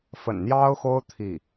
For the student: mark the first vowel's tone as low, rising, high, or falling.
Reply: low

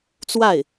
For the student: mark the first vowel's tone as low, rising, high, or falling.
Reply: falling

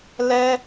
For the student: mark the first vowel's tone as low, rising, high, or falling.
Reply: high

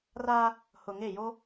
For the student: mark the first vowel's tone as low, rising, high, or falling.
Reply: high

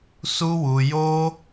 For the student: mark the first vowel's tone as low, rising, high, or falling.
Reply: high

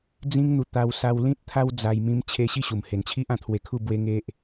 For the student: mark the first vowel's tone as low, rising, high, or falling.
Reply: high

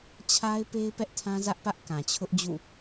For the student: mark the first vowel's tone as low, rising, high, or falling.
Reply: high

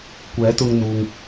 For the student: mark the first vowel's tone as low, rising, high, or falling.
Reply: rising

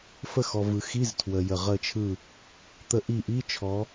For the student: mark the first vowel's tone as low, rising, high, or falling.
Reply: falling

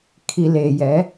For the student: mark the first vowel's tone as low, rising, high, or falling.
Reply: low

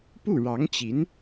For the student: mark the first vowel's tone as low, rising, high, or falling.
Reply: falling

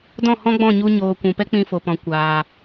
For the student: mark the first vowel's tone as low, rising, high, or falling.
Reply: falling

